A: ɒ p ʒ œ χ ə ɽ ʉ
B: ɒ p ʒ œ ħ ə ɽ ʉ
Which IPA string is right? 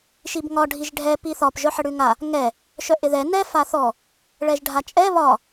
B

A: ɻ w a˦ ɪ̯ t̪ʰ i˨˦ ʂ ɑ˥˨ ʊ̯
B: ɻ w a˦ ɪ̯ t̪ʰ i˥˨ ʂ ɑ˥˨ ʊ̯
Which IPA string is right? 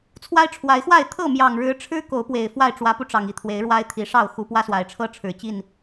A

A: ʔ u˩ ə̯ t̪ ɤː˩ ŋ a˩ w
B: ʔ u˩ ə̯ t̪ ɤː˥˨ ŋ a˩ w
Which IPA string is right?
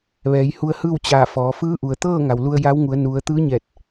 B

